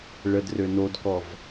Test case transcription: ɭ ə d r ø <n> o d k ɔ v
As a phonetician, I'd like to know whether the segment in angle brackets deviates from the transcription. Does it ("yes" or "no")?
no